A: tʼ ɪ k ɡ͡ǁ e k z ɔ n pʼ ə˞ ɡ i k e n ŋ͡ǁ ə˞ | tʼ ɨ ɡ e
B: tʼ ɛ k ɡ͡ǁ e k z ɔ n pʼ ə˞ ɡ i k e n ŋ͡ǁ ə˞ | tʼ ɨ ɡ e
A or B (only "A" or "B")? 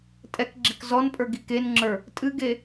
B